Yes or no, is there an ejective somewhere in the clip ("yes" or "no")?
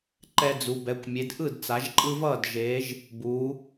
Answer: yes